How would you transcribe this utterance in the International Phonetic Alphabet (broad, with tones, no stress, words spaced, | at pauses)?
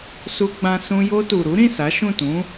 su˧ɡ͡bã˧ sũ˧ jo˧ tu˨ ɾu˨˦ɾĩ˦˨ sa˨˦ʃũ˦˨tũ˨˦